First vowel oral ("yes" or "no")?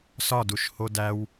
yes